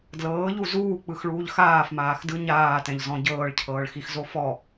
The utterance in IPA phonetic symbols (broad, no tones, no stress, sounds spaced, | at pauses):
d l ɤː ʎ u z uː k͡p ɯ x ɭ uː ʎ x aː f m aː x d ɯ ɲ aː t ɛ̃ ʎ z ɔ̃ ɟ ɤː ɭ cʰ ɤː ɭ x i x z o f ɔ